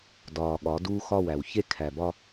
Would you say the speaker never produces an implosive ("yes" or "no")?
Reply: no